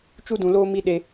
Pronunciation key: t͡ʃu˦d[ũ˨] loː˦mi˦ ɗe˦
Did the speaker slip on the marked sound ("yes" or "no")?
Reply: no